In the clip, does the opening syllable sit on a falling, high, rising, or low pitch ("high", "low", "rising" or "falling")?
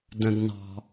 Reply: low